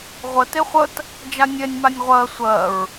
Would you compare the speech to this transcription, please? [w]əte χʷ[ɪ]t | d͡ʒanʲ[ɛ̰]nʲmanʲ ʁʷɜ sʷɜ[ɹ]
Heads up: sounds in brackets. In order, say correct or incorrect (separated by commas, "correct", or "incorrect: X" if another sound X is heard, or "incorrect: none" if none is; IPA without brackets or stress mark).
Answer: incorrect: ʁʷ, incorrect: ə, incorrect: ɛ, correct